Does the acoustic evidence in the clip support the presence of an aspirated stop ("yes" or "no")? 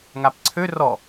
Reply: yes